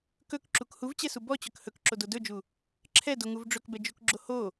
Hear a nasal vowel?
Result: no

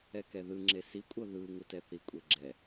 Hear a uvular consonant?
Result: no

